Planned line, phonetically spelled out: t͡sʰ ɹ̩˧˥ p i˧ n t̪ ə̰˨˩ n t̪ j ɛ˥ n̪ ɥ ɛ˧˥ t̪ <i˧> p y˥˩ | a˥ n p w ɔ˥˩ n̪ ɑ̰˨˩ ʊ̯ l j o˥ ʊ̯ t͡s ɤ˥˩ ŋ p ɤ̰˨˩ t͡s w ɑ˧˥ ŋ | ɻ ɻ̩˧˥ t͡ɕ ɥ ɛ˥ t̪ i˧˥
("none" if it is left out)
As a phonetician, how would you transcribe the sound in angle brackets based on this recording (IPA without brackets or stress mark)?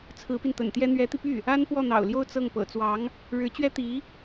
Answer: i˧